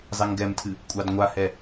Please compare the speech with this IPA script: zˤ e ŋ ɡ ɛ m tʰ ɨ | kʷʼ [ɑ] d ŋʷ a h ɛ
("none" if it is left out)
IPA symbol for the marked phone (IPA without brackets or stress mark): ɑ